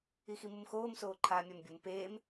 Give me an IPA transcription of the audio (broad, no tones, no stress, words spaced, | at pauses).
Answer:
iximumxoːm soːǃʰaːmʲambʲum peːm